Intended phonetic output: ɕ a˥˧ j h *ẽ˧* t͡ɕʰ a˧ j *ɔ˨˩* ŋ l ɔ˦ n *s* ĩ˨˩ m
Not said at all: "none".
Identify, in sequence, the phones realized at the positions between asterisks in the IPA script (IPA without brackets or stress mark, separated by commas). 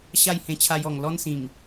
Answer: ẽ˧, ɔ˨˩, s